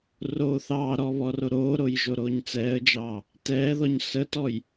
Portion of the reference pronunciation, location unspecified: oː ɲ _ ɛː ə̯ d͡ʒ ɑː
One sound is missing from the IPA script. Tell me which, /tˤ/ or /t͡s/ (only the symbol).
t͡s